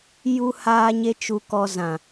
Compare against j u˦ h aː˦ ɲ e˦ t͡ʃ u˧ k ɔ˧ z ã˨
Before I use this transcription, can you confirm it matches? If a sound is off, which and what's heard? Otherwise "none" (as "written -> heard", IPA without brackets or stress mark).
none